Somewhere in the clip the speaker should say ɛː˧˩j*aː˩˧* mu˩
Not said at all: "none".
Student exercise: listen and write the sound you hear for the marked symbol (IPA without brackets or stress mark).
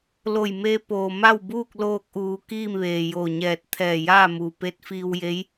aː˥˨